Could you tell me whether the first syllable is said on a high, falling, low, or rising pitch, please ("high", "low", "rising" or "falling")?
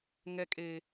low